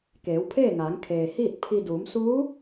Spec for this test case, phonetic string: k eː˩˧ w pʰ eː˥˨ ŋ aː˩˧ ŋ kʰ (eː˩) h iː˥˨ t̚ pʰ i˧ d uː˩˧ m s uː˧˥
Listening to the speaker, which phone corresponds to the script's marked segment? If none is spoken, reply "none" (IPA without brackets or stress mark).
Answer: eː˩